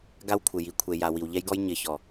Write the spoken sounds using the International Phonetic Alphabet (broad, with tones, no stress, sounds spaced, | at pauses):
ɡ a˦ w kʷʰ ɪ˨ j i˨˦ kʷʰ e˨ j a˨ w i˨ w ʎ ɛ˦ j ɡ ɔ˦ j ɲ ɪ˨˦ ç ɔ˨